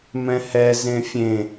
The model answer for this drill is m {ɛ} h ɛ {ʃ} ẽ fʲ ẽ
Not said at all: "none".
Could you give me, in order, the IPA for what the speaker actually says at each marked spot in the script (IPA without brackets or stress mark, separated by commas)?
ɛ̃, z